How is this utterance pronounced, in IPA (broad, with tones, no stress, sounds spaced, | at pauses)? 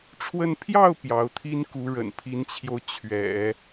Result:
ʈ͡ʂʰ w ə˥˧ n pʰ j ɑ˥˩ ʊ̯ p j ɑ˧˥ ʊ̯ t̪ʰ i˥ n k u˧˥ ɻ ə̰˨˩ n pʰ i˧˥ n t͡ɕʰ j o˧ ʊ̯ t͡ɕʰ ɥ ɛ̰˨˩˦